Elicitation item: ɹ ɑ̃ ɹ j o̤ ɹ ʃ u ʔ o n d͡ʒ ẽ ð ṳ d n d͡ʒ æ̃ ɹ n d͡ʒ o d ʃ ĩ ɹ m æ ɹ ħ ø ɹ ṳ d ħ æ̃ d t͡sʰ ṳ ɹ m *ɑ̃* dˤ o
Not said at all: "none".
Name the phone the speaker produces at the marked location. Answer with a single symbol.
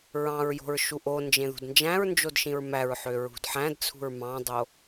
ɑ̃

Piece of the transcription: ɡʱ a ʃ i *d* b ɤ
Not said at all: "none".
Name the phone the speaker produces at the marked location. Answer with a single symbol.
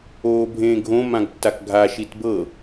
t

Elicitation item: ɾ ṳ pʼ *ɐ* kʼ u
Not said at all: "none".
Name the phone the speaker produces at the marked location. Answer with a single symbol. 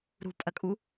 ɐ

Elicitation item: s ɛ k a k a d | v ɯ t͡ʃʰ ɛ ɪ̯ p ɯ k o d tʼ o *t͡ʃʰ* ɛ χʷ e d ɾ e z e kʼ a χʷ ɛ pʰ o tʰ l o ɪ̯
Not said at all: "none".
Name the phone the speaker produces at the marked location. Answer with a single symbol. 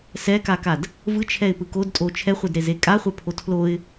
t͡ʃʰ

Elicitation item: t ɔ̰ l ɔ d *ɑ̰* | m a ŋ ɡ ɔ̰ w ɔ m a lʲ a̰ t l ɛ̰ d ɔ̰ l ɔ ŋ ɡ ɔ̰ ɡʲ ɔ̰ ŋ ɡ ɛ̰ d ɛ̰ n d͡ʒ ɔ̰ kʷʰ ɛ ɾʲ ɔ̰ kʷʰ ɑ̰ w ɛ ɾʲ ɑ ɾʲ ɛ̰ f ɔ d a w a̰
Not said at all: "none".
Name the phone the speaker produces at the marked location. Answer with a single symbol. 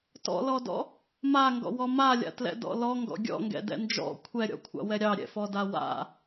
ɔ̰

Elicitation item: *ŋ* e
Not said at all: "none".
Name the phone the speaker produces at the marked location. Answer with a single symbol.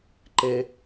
ǃ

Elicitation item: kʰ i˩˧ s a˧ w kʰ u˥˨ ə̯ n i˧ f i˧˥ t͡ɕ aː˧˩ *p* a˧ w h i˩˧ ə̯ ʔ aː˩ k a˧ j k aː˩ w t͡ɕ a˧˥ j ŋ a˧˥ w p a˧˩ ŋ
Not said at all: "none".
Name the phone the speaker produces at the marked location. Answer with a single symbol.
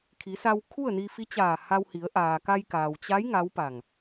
h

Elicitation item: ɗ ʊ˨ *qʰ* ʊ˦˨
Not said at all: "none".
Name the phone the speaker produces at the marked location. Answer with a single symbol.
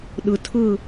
tʰ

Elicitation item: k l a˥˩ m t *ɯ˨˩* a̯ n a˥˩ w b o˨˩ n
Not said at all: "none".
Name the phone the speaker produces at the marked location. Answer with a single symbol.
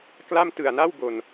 ɯ˨˩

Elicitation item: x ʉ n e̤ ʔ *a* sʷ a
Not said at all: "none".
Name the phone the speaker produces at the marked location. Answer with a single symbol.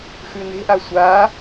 a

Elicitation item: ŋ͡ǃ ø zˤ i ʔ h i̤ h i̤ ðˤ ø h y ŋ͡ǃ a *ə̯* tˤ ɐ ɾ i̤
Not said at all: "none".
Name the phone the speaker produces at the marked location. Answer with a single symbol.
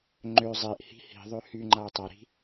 ʊ̯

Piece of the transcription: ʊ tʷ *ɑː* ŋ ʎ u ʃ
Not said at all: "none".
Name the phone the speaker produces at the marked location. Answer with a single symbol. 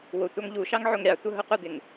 ɑ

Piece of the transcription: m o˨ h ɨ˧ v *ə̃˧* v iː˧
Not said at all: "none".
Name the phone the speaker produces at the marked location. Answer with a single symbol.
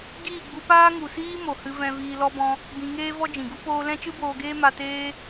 ɛ̃˧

